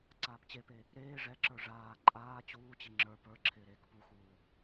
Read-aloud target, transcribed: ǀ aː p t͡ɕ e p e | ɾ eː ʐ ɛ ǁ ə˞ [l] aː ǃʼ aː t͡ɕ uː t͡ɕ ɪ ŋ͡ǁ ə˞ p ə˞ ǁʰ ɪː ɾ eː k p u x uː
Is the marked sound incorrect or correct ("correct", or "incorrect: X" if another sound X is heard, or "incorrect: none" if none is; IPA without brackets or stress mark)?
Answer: incorrect: ʐ